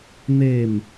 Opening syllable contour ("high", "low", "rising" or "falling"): falling